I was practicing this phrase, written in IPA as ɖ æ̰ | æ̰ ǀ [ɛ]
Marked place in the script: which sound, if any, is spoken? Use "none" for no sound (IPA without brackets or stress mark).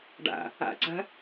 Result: ɛ̤